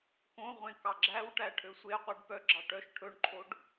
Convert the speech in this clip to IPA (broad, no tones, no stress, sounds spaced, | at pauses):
k õ ʁʷ ẽ k ɑ ɡ͡ǁ æ w ʈ æ ʈʰ ø sʷ e qʷ ɛ ɖ p œ ɡ͡ǁ ɑ ʈ œ ʃ ʈʰ ɵ ɳ ǃʰ o ɖ